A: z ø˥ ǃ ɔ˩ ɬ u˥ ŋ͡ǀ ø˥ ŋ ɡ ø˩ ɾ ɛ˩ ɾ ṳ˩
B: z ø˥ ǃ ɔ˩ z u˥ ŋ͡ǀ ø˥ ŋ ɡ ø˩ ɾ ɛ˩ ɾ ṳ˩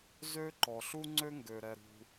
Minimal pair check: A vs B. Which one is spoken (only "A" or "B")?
A